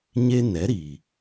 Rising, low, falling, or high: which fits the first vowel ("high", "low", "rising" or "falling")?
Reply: high